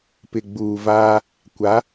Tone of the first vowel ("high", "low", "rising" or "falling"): low